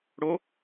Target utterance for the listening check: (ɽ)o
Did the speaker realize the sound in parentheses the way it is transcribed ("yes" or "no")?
yes